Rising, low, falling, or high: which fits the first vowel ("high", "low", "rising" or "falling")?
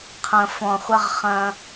low